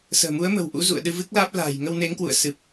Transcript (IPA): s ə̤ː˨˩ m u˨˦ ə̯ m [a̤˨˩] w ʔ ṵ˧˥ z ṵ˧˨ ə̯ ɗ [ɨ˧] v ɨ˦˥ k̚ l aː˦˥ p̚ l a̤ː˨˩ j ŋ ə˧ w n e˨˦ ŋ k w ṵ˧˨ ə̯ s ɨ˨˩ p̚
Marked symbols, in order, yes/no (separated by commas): no, yes